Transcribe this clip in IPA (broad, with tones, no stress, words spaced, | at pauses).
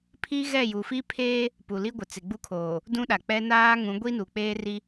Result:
pʰi˦ɣɛ˦˨ju˨fi˦ pʰeː˦ | pu˨li˦ɡʷɪ˨ t͡sɪ˨ɡ͡bu˦kʰoː˨ | dũ˦ɗa˨k͡pɛ˦ naː˦ŋũ˨˦ ɡʷi˦nu˨k͡peː˦ri˦